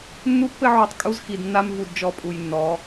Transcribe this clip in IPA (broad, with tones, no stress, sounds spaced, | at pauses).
nː u˦ pː ɘ˦ ʕ u˨ tˤ kʼ u˦ z x i˨ d nː a˦ m v u˨ d d͡ʒ ɔ˨ pʼ u˨ j nː ɔ˨˦